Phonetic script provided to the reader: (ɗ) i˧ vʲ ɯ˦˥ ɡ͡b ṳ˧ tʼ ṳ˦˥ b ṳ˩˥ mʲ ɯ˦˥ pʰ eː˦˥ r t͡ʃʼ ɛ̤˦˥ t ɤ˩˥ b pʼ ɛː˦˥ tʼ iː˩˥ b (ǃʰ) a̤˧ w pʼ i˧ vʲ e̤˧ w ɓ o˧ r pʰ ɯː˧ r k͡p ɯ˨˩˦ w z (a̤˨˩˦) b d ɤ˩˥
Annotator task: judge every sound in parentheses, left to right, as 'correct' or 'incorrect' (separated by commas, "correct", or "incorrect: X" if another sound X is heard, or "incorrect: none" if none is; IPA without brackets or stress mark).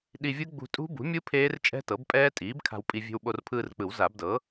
correct, incorrect: kʰ, incorrect: a˨˩˦